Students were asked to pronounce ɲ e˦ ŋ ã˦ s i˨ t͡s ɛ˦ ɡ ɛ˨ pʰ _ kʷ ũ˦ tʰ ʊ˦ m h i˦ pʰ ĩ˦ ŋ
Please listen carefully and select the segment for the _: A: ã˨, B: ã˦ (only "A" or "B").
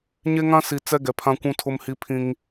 B